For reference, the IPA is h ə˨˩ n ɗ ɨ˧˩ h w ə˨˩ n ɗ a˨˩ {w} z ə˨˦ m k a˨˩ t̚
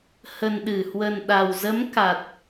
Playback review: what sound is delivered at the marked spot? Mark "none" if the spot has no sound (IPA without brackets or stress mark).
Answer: w